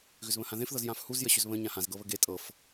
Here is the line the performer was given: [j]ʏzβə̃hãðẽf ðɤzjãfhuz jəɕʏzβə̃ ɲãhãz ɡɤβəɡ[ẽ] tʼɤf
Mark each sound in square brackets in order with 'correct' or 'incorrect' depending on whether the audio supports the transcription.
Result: incorrect: ɣ, incorrect: e

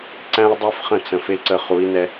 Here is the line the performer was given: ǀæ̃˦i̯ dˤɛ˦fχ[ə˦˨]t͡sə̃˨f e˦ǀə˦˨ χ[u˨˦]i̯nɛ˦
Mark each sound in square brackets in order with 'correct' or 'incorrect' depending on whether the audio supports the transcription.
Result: incorrect: ə̃˦˨, correct

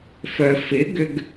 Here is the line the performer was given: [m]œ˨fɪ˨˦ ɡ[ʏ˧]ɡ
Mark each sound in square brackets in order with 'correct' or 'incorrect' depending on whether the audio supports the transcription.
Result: incorrect: f, correct

